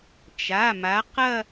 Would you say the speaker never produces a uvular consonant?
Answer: no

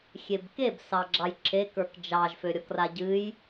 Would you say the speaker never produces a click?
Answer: no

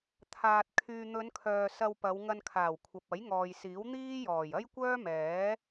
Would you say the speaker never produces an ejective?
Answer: yes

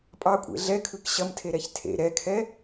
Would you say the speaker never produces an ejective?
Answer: no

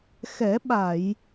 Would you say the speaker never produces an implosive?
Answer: no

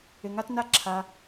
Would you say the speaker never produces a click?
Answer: no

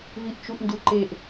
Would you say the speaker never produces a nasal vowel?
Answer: yes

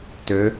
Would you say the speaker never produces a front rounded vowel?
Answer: no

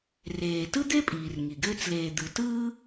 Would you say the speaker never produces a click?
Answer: yes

